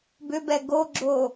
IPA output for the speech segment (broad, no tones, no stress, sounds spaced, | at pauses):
b ʏ b ɛ ɡ o ɡ͡ǁ o